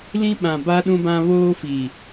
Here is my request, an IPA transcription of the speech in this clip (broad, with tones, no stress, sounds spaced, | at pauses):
l ĩ˦ ɓ ã˨ b a˦ ɗ ũ˦ b ã˦ β oː˦ f i˨